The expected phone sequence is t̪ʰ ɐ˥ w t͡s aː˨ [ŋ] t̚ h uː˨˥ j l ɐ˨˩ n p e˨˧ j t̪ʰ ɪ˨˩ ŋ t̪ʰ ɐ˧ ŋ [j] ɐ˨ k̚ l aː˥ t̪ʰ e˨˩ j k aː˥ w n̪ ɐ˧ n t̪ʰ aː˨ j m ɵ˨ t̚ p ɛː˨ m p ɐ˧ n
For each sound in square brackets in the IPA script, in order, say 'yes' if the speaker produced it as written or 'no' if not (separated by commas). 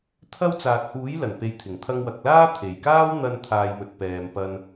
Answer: no, no